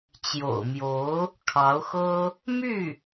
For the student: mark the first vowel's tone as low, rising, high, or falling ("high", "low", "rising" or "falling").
low